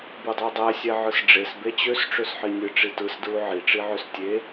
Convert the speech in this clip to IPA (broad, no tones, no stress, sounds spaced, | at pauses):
b u dˤ æ dˤ æ sʲ æ ʕ ɯ s ɖ͡ʐ e s b e t͡ɕ ø s ʈ͡ʂ ø s ħ i nʲ ɯ ʈ͡ʂ i t ɯ s d ɹ u ʕ i ʈ͡ʂ i ʕ ø s tʲ e